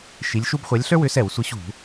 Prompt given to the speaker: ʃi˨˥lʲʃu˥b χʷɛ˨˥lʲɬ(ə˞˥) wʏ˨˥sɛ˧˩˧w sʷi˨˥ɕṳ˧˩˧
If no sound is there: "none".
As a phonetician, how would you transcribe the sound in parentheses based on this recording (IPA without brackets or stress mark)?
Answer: ə˞˥